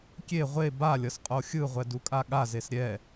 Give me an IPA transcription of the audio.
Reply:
kʲ e ʁʷ e b a lʲ ʌ s qʼ o xʲ ɯ ʁʷ ɛ d u kʼ a ɠ a z e s ɾʲ ɛ

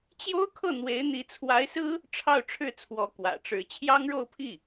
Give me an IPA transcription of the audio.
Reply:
t͡ɕ j o˥ ʊ̯ kʰ ɤ˥˩ n̪ w e˧˥ ɪ̯ n̪ i˧˥ t͡sʰ w a˧˥ ɪ̯ s ɹ̩˥ | ʈ͡ʂʰ ɑ˥˧ ʊ̯ ʈ͡ʂʰ ɻ̩˥˩ t͡sʰ w ɔ˧˥ k w ä̰˨˩ ʈ͡ʂ ɻ̩˧˥ t͡ɕʰ j ɑ˥ ŋ ɻ o˥˧ ʊ̯ pʰ i˥˩

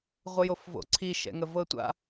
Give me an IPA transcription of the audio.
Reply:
ʁʷ ə j o f v o̰ ǀʰ i ʃ ɛ̰ ŋ ə v ɤ tʷ a̰

